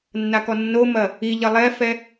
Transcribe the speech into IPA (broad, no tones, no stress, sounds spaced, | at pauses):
nː a k ɔ nː o m ɐ | i ʎ ɐ lˠ ɛ f ɛ